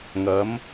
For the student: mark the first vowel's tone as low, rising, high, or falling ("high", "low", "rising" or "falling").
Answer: rising